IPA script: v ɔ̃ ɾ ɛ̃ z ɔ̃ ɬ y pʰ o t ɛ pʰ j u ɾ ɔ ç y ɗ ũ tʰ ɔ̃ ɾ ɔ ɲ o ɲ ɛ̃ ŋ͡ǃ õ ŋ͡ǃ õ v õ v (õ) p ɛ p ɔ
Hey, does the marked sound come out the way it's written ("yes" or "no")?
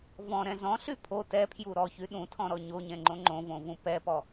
no